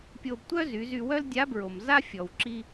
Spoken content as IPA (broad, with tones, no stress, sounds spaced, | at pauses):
pʲ o˧ b tʷ œ˥ z y˩˧ z y˧ w œ˥ l dʲ a˧˥ b ɹ o˩ m z a˥ fʲ ɔ˩ w ǁ i˥